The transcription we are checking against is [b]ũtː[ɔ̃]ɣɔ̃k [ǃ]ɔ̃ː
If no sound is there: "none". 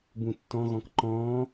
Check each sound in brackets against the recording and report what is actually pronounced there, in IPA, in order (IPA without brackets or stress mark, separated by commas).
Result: b, ɔ̃, ǃ